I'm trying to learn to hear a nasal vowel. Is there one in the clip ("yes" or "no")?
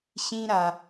yes